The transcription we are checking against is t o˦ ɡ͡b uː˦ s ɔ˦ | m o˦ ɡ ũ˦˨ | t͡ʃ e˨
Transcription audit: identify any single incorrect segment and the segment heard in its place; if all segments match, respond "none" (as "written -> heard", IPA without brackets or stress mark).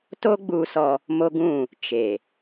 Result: none